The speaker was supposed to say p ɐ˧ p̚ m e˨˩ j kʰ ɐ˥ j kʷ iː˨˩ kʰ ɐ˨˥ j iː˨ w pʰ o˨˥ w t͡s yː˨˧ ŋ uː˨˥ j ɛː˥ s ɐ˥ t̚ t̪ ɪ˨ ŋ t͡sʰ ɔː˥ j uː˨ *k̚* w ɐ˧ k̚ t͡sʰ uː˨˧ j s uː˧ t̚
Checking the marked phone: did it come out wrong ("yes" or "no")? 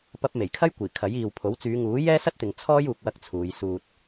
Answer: no